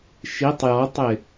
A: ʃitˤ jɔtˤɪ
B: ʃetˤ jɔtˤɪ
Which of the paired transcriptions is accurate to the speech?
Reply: A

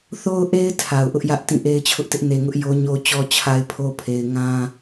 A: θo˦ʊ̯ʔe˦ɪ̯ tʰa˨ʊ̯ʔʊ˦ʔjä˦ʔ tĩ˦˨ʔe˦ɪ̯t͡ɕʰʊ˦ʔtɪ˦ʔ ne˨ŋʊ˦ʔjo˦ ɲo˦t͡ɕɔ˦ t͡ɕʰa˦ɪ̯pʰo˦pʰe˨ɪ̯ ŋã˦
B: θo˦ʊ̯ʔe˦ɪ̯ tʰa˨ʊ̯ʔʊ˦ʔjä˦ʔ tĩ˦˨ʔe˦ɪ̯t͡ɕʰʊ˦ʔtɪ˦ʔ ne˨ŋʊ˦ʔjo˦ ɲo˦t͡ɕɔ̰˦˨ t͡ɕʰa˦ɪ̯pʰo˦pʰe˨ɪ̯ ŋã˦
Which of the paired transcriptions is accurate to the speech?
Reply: A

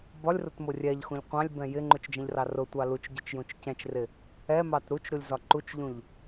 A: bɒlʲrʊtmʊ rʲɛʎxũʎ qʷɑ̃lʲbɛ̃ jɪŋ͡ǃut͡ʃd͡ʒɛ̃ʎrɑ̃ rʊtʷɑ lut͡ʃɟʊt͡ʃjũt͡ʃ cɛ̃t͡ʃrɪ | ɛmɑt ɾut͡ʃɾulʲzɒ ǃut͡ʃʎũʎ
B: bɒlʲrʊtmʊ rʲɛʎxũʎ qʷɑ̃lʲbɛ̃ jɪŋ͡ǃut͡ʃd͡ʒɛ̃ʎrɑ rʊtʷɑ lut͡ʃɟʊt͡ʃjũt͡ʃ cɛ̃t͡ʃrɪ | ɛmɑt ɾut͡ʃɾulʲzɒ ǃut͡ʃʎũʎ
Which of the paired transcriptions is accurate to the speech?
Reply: B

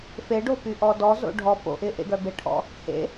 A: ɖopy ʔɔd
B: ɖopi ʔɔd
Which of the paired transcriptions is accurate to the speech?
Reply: A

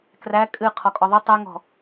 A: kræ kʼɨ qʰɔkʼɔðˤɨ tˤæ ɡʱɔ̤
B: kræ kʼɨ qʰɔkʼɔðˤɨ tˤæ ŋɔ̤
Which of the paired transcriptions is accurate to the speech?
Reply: B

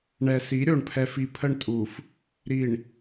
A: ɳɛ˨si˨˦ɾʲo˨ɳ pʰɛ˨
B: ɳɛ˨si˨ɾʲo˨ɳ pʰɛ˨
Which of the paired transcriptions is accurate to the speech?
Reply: A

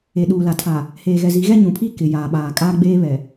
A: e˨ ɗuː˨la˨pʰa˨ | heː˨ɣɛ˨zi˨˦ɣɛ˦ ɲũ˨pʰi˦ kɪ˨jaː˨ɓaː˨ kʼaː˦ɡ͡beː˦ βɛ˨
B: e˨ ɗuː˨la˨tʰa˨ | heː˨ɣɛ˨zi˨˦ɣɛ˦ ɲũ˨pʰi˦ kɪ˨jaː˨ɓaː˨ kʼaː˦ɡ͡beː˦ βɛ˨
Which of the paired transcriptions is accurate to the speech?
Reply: B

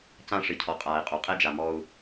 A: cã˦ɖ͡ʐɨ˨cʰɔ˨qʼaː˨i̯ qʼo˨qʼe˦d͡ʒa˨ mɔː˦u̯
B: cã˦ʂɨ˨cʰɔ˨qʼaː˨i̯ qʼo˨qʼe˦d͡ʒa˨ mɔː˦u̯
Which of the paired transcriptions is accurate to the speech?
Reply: B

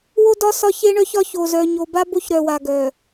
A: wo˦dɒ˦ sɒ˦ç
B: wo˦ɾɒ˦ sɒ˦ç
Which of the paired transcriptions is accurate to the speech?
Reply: A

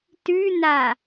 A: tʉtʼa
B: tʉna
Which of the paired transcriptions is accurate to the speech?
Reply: B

